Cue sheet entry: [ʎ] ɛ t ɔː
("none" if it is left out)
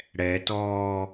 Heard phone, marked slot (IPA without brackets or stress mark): ɽ